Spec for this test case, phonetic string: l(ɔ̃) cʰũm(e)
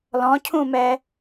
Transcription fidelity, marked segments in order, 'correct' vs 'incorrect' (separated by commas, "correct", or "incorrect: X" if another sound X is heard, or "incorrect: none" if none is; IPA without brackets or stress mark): correct, incorrect: ɛ